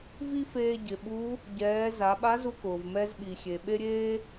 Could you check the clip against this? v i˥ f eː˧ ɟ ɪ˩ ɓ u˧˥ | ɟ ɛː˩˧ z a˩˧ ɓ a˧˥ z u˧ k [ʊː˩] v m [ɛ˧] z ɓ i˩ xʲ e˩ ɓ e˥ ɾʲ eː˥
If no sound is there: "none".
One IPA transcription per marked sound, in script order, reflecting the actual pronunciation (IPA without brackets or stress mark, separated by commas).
ʊː˩, ɛ˧